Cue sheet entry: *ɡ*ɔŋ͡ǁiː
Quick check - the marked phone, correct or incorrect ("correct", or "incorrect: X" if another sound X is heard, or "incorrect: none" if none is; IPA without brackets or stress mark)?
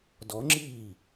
incorrect: d